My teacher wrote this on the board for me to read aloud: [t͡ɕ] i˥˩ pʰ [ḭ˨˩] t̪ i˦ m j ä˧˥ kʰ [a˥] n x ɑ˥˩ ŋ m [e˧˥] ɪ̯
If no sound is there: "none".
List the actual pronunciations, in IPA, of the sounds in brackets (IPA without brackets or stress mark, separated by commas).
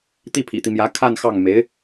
t̪, ḭ˨˩, a˥˧, e˧˥